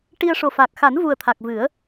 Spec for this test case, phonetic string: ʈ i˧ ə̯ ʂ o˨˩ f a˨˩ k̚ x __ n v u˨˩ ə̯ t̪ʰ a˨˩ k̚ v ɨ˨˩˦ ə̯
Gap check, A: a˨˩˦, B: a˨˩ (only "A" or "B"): A